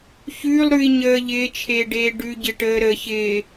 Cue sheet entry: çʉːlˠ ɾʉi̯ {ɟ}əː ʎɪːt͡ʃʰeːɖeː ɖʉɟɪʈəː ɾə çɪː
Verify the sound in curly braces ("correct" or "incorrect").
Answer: incorrect